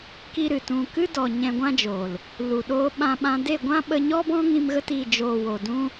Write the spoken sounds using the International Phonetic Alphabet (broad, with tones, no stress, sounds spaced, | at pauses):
k i˦ ɾ ɨ˨ t ũ˧ k ɨ˧ d ɔ˨ ɲ ɛ̃˧ ɡʷ ã˦ d͡ʒ o˨ l | l u˨ ɗ oː˧ ɓ ã˧ ɓ ã˧ d e˦˨ ɡʷ ã˦ ɓ ə˧ ɲ ɔ˦ b ɔ̃˦ ŋ ĩ˧ m ɣ ə˧ t i˨ d͡ʒ oː˨ w o˨ d ũ˦